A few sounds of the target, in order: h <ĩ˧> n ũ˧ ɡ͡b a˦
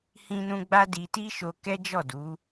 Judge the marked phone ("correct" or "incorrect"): correct